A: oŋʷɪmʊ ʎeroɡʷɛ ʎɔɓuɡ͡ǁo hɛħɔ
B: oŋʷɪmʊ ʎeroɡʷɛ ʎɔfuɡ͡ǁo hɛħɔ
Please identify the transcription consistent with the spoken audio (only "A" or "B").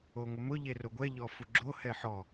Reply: B